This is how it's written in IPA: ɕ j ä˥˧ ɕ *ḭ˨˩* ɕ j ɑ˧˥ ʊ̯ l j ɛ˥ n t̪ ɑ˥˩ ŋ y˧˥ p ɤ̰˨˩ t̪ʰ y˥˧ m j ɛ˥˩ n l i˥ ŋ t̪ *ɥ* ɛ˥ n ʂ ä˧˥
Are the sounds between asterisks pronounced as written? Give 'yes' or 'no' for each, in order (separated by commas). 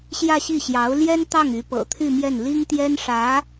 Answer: no, no